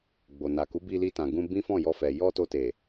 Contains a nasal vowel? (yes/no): yes